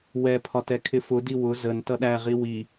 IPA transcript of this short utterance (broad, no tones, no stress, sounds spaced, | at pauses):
w ɛ pʰ ɒ t ɛ kʰ ɪ f ʊ d i w ʊ z ə n t ʌ ɗ æ ʁ i w i